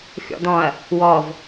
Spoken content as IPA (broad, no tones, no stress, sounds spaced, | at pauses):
xʲ ɔ̰ d̪ ɔ̃ ɐ̯ | w ɔ v